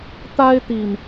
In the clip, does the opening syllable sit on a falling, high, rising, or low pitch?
high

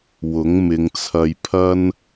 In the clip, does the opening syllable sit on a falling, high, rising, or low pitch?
rising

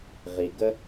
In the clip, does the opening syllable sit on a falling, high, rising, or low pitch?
low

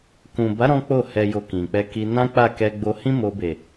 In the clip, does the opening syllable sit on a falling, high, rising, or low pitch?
low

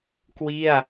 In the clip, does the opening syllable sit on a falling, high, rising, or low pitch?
falling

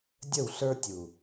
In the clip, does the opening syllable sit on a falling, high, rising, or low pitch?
falling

